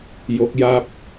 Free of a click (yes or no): yes